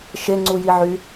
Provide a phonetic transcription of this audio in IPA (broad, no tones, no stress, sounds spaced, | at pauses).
ʃ e ŋ͡ǀ u j i ʕ y